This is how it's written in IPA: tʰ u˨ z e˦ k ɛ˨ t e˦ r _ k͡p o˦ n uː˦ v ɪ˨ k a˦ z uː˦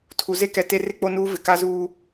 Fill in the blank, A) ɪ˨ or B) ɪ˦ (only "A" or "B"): B